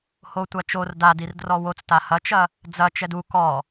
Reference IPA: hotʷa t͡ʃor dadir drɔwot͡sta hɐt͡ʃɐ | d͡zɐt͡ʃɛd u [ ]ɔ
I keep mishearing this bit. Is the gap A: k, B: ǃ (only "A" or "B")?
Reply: A